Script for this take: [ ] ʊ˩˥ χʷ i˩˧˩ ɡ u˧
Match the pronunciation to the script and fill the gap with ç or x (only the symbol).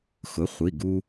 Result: x